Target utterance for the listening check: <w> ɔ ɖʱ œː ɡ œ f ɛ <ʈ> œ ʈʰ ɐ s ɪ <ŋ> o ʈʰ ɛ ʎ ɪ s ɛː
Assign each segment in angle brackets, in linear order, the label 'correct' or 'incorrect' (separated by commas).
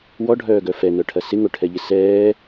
correct, incorrect, correct